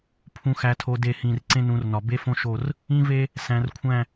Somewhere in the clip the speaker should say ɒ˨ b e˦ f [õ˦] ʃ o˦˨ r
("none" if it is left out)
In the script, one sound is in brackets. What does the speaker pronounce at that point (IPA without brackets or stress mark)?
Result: õ˦